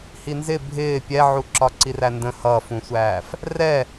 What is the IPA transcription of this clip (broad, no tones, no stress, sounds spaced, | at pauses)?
h i n z ɪ bʱ ɪː pʲ ɛ ʕ u ǁ ɒ ǀ i r æ n d ə̃ h ʌ f ũ sʷ æː f | r ɛ